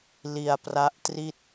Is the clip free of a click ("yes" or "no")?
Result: yes